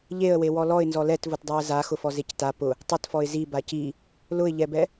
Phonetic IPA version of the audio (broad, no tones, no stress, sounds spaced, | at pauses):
ʎ e ə̯ w e w ɔ l ɔ ɪ̯ n z ɔ l ɛ t v ʊ t dˤ e ə̯ z a x ʊ f ɔ z e c t a p ʊ | tˤ ɪ t f ɔ ɪ̯ z i b a c i | l ʊ ɪ̯ ʎ ɛ b ɛ